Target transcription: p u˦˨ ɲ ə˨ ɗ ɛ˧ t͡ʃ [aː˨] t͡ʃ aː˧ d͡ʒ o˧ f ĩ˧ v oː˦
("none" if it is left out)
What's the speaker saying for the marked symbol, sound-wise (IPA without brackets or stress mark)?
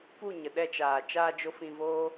aː˨